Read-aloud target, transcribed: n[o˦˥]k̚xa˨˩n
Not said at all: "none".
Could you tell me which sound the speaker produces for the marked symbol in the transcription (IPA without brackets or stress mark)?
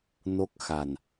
o˦˥